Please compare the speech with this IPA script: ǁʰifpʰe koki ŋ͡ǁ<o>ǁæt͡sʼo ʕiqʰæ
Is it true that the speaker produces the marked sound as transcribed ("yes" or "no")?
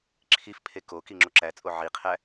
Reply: yes